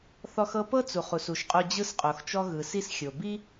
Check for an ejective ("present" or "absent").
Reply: present